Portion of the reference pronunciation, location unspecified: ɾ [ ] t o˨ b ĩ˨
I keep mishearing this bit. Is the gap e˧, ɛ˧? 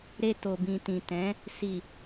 e˧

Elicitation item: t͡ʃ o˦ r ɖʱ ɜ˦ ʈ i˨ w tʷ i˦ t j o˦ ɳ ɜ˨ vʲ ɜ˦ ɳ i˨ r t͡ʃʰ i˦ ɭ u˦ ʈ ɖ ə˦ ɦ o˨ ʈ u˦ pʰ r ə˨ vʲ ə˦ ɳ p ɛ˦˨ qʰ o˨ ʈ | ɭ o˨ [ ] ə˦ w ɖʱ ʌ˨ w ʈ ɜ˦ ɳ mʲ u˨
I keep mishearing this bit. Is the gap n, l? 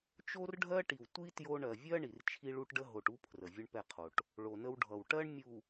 n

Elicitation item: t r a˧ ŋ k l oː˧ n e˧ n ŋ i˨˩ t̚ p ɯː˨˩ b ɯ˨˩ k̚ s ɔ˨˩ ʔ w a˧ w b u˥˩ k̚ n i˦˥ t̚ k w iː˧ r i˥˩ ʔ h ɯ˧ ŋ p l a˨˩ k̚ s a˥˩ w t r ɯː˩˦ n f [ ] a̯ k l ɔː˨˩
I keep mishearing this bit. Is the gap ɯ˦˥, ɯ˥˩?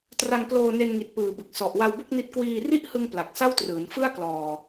ɯ˥˩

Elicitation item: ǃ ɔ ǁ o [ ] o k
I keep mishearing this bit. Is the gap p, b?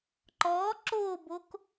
b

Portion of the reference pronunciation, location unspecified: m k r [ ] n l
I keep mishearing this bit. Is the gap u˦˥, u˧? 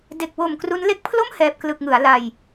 u˦˥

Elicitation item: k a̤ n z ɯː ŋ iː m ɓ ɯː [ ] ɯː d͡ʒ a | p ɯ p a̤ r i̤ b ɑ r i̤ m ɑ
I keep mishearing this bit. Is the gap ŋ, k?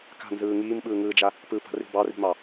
ŋ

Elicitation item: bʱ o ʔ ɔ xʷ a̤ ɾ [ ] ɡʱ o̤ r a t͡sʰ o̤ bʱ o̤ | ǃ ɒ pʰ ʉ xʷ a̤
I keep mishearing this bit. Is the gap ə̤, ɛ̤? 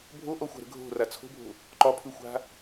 ə̤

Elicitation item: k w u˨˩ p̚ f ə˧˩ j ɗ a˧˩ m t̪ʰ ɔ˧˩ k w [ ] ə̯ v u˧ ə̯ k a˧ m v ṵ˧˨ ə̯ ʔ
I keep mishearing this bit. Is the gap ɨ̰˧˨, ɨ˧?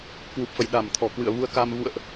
ɨ̰˧˨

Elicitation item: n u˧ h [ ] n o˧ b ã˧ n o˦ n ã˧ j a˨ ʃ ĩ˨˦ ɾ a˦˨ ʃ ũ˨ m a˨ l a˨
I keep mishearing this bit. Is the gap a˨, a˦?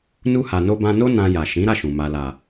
a˨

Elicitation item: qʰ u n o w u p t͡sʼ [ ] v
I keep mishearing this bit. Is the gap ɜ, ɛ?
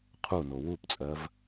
ɜ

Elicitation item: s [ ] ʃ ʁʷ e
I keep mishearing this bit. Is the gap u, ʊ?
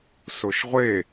ʊ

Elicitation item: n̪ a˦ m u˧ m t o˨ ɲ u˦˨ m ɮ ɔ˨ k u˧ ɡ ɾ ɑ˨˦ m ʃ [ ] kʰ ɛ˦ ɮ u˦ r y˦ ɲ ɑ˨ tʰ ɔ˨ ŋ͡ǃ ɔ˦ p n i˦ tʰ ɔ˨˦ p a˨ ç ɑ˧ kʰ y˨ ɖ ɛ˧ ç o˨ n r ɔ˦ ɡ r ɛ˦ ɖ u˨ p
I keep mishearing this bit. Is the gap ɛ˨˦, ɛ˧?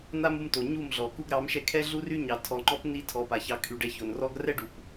ɛ˧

